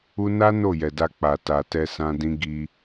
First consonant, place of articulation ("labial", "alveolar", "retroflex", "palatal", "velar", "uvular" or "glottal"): alveolar